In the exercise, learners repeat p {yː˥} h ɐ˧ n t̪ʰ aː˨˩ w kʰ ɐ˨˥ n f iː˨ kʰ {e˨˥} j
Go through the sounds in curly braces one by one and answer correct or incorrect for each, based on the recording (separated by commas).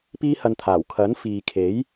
incorrect, correct